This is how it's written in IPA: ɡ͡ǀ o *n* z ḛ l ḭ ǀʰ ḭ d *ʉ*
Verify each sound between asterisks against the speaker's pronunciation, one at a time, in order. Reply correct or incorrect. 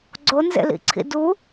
correct, incorrect: u

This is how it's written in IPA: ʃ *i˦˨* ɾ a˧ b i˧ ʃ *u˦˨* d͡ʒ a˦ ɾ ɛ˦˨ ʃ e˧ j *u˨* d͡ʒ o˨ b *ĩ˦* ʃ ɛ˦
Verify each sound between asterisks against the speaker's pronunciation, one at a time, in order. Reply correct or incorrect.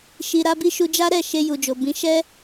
incorrect: i˨, incorrect: u˧, correct, incorrect: ĩ˨˦

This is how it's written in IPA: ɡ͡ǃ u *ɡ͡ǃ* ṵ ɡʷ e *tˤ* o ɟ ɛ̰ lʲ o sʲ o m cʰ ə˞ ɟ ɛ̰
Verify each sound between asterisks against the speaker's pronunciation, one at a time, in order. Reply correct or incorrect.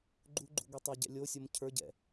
correct, correct

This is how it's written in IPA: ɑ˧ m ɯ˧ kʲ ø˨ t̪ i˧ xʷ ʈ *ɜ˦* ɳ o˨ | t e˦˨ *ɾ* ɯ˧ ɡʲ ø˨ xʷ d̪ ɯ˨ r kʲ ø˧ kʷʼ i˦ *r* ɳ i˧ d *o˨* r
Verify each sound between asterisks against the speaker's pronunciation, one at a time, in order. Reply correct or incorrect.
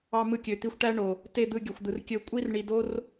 incorrect: æ˦, incorrect: d̪, correct, incorrect: o˦

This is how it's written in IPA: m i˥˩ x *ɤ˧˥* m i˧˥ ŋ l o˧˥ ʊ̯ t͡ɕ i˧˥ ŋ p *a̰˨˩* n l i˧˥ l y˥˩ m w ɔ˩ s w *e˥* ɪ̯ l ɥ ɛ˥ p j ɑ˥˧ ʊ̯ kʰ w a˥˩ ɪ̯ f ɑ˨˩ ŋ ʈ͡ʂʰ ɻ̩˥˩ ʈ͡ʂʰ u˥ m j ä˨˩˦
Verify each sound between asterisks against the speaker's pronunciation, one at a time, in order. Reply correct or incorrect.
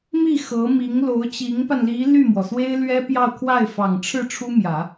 correct, incorrect: a˧, correct

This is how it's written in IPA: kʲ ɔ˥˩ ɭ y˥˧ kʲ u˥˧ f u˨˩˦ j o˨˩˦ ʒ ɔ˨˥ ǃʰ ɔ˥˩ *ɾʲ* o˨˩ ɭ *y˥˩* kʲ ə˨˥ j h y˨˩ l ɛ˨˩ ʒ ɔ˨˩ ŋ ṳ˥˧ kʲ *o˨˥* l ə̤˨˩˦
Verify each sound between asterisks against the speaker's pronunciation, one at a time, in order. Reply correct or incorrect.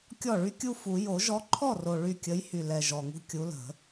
incorrect: r, correct, incorrect: u˨˥

